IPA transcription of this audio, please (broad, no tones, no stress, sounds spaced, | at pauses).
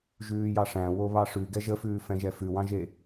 ʒ ʉː j ɑ ʂ æ̃ w o β ɑ ʂ ʉ ɡ ɛ ʒ ə f ʉː f ɛ̃ ʒ ɛ f ʉ w ɑ̃ ʒ e